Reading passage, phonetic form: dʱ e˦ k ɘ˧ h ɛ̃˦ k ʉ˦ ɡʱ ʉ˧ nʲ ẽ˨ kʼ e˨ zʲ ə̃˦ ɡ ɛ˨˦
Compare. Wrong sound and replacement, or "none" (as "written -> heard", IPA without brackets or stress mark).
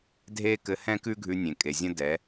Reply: ɡ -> d